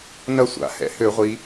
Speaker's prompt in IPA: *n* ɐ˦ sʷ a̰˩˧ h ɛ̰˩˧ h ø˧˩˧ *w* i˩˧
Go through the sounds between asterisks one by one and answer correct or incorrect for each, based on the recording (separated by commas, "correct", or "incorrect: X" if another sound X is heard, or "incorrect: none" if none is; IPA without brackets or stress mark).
correct, incorrect: ʁʷ